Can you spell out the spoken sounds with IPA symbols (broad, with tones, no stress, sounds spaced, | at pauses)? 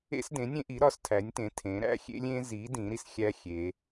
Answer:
ḛ˦ s d ẽ˨˦ nʲ ẽ˦ ʔ i˨˦ ɾ ɒ˨˦ s tʰ æ˨˦ nʲ t ẽ˨˦ tʰ ẽ˨˦ ɾ æ̰˦ xʲ ḛ˦ lʲ ẽ˦ z i˨˦ d ĩ˨˦ ɾ i˦ s xʲ æ˦ xʲ e˨˦